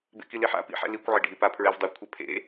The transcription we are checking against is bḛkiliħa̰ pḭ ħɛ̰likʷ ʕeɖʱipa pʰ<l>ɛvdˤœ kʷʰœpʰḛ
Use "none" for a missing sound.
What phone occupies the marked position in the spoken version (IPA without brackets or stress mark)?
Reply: ɹ